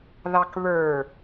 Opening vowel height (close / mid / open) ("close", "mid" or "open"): open